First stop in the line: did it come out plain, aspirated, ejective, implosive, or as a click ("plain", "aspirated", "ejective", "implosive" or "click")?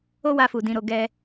plain